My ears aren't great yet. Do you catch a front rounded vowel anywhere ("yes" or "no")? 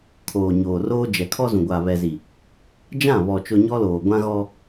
no